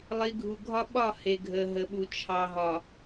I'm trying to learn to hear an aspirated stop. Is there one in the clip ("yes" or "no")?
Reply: yes